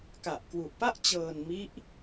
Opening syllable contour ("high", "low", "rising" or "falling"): low